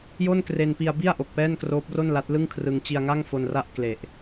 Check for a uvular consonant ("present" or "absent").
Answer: absent